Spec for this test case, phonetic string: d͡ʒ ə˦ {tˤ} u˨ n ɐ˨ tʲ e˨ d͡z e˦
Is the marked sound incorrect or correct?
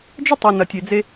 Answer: correct